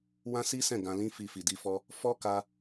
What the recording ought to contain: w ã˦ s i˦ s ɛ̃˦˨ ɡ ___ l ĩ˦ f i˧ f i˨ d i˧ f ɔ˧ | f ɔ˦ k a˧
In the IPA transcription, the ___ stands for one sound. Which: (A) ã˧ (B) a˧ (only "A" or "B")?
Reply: A